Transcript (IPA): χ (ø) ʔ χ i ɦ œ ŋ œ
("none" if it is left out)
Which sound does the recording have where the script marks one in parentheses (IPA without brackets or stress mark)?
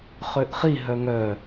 ø